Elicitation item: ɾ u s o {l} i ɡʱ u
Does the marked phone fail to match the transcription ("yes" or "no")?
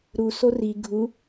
yes